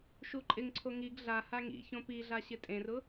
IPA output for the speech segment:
ʃ u ǃʼ ɪ ŋ ǀʰ o ŋ i ɡ ɮ a h a ŋ ḭ ç õ p i ɮ a ɕ ɪ tʼ ẽ r ʊ

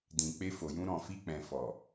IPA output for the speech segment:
d ĩ˨ k͡p e˧ f o˨ j ũ˧ ɾ ɔ̃˨ f i˧ k͡p ɛ̃˨ f ɔ˨

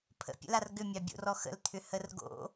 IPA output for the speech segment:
pʰ ə̰ pʲ ə̰ l a r ɡ ʏ mʲ ɑ bʲ o̰ r ɔ x ə̰ l t̪ʰ ʏ h ə r ɡ o̰

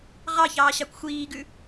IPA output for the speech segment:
ʁ ɑ ç ɑː ɕ ɑ kʷ xʷ iː ɡ ʉ

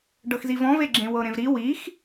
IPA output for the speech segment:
ɖ ɤ x z i v ɔ̃ v e ɡ͡ǁ ẽ w ɤ ɾ ẽ v ɾ i w i x

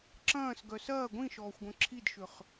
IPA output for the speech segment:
ǁ ɐ̃ː s ɡ œ s ɐː ɡʷ ĩ ʃ ɔː xʷ ɡʷ œ̃ ǁʰ i d ʃ ʏ χ

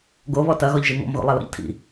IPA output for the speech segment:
ɡ o β ɔ t ɐ ɣ ɔ ʎ ʒ i ŋ ɔ̰ m ɣ o̰ lˠ ɐ l ɔ̰ ʎ tʰ ḭ

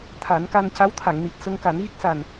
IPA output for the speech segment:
t̪ʰ a˨˩˦ n k a˧ n c a˧˥ w t̪ʰ a˨˩˨ ŋ n i˨˩ t̚ s ə˧ ŋ k a˨˩˦ n ɣ i˦˥ k̚ s a˨˩ n

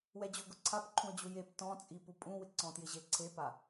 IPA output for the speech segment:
w ɛ d͡ʑ ʊ ɡ ʊ ǀʰ a p ǃʰ ũ ə̯ d͡ʑ u j e p t ɔ̃ t͡sʼ i p u pʼ ũ w ɪ ǀ ɔ̃ t j ɪ ʑ e ǀʰ e p a

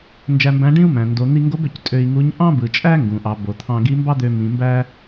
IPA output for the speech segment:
n d͡ʒ æ˧ m b æ̃˧˥ ɖ ĩ˥ u̯ m æ̃˩ n d o˩˧ n̪ i˧ ŋ ɡ o˧˥ b ø˩ c tʼ ø˧ i̯ ŋ u˧˥ ɲ ʔ ɑ̃˥ b ɯ˩ t͡ʃʼ æ˥ ŋ ɡ ũ˩ ʔ ɑ˩˧ b o˩ t̪ʰ ɑ̃˧ ɡ i˧˥ m b ɑ˥ d̪ ø˧ m ĩ˩˧ m b æ˥

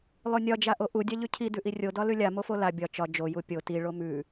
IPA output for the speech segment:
lˠ o nʲ ɒ d͡ʒ a ʔ o ʔ u dʲ a ʎ ʉ cʰ i d ʉ ʔ i rʲ o d ɒ l ʉ lʲ a m o f o l a bʲ ɒ t͡ʃ ɒ d͡ʒ o j u pʲ o t i ɭ o m ʉ

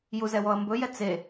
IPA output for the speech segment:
j u z ɛ w ɔ ɐ̯ m b ɵ j ɛ t͡s e

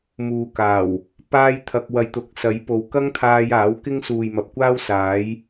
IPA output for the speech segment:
m uː˨ k aː˨˩ w | p aː˥ j t̪ʰ ɐ˧ k̚ w ɐ˨˧ j t̪ ʊ˨ k̚ s ɐ˨˥ j p o˨ w k ɐ˥ ŋ t̪ʰ aː˧ j aː˨˥ w k ɪ˥ ŋ s uː˨ j m ɐ˨ p̚ kʷ aː˥ w s aː˨˥ j

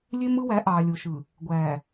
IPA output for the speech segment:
lʲ e˦ m ɯ˦ w æ˨˦ ʔ ɑː˨ lʲ o˨ ʃ ɯ˨ | ɡʷ æː˨

